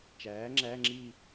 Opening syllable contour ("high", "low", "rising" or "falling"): rising